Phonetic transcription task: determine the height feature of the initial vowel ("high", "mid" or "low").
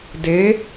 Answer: mid